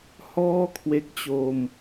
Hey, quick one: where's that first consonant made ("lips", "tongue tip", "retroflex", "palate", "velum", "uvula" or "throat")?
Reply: throat